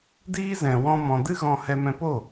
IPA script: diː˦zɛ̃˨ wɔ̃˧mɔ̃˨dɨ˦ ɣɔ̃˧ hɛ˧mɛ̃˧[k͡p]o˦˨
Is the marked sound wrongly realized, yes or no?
yes